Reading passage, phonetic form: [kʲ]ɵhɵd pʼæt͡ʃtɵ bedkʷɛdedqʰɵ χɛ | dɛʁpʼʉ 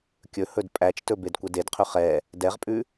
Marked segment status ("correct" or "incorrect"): correct